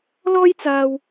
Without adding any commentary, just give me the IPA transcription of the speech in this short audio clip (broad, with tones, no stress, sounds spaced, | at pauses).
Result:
l ɔː˥ j t͡s aː˧ w